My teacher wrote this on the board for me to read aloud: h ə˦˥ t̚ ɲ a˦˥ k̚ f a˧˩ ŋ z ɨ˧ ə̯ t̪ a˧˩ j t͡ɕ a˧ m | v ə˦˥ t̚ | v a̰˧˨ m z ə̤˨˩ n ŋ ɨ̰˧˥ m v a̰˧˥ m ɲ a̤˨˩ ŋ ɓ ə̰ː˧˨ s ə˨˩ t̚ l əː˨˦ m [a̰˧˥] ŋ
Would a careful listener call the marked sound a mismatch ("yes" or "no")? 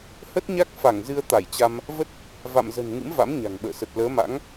no